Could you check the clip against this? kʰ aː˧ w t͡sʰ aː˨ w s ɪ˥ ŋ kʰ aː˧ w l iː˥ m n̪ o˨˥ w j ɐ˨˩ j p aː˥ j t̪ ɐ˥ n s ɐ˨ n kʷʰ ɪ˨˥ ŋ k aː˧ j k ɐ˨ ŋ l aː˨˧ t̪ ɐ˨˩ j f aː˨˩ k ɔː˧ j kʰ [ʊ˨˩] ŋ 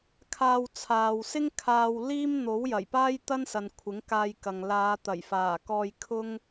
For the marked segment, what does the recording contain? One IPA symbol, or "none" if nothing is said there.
ʊ˥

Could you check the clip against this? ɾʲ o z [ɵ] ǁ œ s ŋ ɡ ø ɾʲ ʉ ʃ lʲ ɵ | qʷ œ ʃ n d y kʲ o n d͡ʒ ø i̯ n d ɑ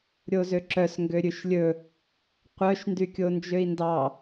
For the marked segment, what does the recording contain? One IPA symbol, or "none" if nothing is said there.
ø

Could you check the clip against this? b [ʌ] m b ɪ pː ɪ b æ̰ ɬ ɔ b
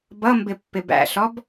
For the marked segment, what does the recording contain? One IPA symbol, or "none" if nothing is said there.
ʌ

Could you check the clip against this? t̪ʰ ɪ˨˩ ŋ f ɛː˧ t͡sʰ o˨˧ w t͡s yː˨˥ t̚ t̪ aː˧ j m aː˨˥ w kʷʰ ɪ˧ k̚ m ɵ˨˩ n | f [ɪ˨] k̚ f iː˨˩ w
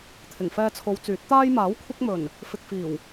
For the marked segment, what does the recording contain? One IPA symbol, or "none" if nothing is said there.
ɪ˨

